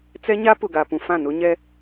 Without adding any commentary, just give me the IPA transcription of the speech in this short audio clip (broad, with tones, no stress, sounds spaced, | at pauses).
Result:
t͡s ɛ˦ ɲ a˦ p ʊ˨ ɡ a˨ p ũ˦ f ã˦˨ n ʊ˦ ɲ ɛ˦